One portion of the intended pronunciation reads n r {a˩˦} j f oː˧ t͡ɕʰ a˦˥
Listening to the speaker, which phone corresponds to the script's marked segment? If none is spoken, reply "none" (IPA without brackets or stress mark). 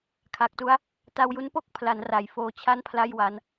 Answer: a˩˦